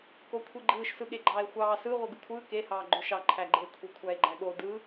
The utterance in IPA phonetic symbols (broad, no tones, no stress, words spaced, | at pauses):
kokʷʰiɡ͡ǃɯːʃ sɯɠeɡ͡ǃɑːe̯xʷɑː sɯ ʁʷɯɡɯkʷʰɯː ke hɑːɡ͡ǃøʃɑ ǃʰæɡ͡ǃe kʷʰekʷʰæe̯ɡ͡ǃæɠo dɯ